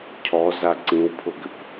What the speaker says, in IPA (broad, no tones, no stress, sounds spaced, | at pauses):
cʰ ɔ z a ǀ ĩ w pʰ ʊ ɡ ʏ p